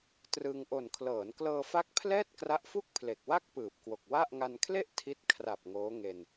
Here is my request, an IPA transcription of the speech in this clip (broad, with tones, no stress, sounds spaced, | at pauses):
t r ɯ˧ ŋ ʔ o˨˩ n kʰ l ɤː˩˦ n k l ɤː˧ f a˦˥ k̚ pʰ l ɛː˥˩ t̚ k r a˦˥ ʔ f u˥˩ k̚ pʰ l e˨˩ k̚ w a˥˩ k̚ p ɯː˨˩ p̚ k w o˨˩ k̚ w a˥˩ ʔ ŋ a˧ n kʰ l e˥˩ ʔ tʰ i˦˥ t̚ kʰ r a˨˩ p̚ ŋ oː˦˥ ŋ e˧ n